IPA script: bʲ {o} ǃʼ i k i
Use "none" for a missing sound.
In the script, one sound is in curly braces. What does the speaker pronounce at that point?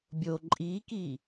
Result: o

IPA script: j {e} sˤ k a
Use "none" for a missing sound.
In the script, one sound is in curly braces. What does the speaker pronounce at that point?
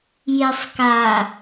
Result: e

